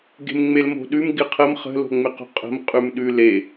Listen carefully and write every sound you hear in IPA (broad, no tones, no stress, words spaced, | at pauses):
ɡe̤mŋ͡melmo̤ɗʉm ɡɪqʰəm χə̤ lo̤ŋ͡mɪqo̤qʼə̤m qʼʉmɗʉle